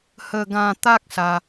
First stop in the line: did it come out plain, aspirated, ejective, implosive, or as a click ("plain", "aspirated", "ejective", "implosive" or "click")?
plain